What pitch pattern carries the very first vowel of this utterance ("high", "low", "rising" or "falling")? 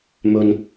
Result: low